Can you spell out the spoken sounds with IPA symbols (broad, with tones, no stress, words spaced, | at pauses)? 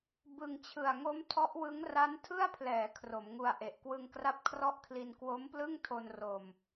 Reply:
bɯ˧ŋ t͡ɕʰɯ˨˩a̯ ŋo˦˥m tʰɔ˦˥ʔwɯ˦˥ŋ ra˦˥ntʰɯ˥˩a̯pʰlɛː˩˦ kʰro˩˦mŋu˧a̯ʔe˨˩ʔ kwɯ˧ŋkra˥˩p̚kʰrɔ˥˩ʔkʰli˧n kwo˦˥mplɯ˥˩ŋtʰo˧n ro˧m